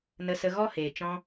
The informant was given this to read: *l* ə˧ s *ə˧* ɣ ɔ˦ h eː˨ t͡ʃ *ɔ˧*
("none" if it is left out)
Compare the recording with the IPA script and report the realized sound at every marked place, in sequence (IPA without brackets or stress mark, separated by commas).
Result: n, ə˧, ɔ̃˧